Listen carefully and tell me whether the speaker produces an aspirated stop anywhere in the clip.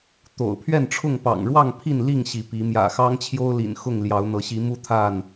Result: yes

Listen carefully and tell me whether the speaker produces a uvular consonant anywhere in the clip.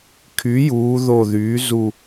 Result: no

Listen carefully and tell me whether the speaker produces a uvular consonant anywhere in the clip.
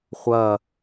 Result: yes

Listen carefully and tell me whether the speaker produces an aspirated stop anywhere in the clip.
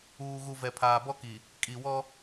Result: yes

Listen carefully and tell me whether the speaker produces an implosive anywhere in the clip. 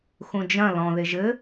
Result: no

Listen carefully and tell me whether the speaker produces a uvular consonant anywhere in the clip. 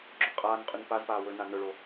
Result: yes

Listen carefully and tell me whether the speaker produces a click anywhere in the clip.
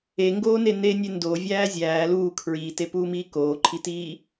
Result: yes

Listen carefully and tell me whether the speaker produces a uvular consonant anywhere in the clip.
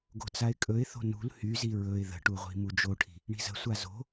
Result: yes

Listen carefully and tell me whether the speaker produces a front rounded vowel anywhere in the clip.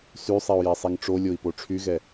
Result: yes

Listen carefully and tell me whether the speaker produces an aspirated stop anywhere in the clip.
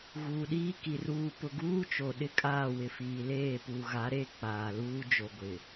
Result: no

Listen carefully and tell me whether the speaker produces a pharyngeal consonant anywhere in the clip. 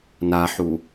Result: yes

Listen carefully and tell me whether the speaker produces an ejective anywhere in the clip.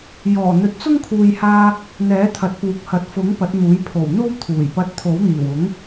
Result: no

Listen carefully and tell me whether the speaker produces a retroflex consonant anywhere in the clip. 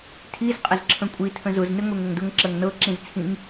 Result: no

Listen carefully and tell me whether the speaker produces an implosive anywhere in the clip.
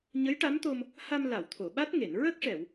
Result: yes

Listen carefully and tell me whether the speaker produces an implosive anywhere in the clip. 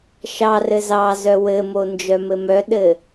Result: yes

